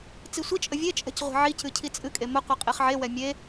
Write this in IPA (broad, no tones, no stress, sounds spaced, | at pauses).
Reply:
t͡s i sʷ i t͡ʃʼ ə vʲ e t͡ʃʼ ɛ̤ c ʁʷ e̤ ʕ i c ɨ cʰ i t͡sʼ ɨ kʼ e m ə qʷ i qʼ e χ ʕ e w ɛ mʲ e